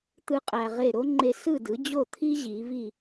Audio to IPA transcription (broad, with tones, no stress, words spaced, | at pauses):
t̪ɯ˥qʼæ˧ʁe˥˩ ɾo˥ŋ͡ǃe˧sɯ˥˩dɯ˩˥ d͡ʑo˥˩t̪ʰi˥ ʑi˩˥vi˥˩